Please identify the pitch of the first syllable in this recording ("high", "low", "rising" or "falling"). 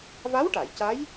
rising